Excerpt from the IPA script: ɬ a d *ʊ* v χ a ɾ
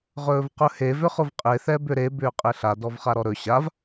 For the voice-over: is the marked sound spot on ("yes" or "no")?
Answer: no